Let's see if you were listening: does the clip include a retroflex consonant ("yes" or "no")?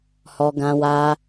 no